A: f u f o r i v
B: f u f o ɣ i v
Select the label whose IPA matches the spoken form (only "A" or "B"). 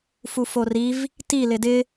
A